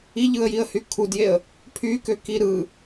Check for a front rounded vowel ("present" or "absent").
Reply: present